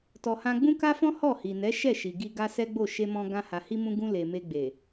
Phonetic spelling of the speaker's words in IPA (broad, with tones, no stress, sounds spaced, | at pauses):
t ɔ˧ h ã˦ ɡ͡b ũ˦ k a˦ f ɔ̃˦ h ɔ˦˨ h i˨ n ɛ˨˦ ʃ ɛ˦˨ ʃ i˨ ɡ i˧ ɡ a˦ s ɛ˦ ɡ͡b o˦˨ ʃ e˧ m ɔ̃˧ ɡ ã˧ h a˨ h i˧ m ũ˧ ɡ ũ˧ l e˨ m e˧ ɡ͡b e˨